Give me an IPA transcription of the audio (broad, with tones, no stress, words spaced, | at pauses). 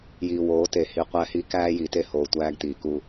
jiː˨woː˨˦te˨ hi˨ qʷæ˦hi˦ kæː˦ji˨te˦ hoː˨tʷæː˦ɡtiː˨ku˦